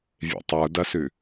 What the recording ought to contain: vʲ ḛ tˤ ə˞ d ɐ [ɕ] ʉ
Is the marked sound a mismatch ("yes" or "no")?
yes